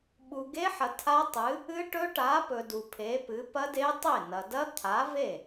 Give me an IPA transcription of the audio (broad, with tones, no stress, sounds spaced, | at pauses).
ɓ u˨ ɡ e˦˥ ħ ɐ˨ tʰ a˦˥ tˤ ɨ˨˥ | ɨ˦˥ ʈ ɵ˦˥ ʈ a˨˥ p ɵ˨ d u˨ pʰ e˨˥ p ɨ˨˥ p ɐ˦˥ d e˦˥ tˤ e˥˩ n ɐ˨ d ɐ˦˥ t̪ʰ a˨˥ v e˥˩